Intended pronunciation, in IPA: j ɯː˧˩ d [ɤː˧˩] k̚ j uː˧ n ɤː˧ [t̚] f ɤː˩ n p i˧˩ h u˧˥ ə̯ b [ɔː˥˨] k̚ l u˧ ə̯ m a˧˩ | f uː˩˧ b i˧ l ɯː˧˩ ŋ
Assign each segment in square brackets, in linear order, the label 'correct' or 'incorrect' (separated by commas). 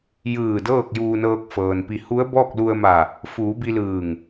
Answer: incorrect, incorrect, correct